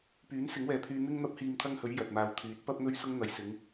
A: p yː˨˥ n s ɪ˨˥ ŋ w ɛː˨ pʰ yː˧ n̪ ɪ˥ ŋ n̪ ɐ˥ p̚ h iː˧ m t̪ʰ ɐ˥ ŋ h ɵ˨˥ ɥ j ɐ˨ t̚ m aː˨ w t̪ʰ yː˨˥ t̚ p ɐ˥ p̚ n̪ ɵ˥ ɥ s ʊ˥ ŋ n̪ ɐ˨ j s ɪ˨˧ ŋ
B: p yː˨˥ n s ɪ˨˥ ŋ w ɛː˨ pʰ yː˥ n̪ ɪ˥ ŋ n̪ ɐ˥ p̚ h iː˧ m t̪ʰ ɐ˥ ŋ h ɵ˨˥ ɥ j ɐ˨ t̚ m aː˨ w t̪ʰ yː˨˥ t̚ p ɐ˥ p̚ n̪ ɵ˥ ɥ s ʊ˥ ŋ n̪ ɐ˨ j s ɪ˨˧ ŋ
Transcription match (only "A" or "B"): A